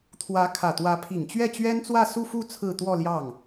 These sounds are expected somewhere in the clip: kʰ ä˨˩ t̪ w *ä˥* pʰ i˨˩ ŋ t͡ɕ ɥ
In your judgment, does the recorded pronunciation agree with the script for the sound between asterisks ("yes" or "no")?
no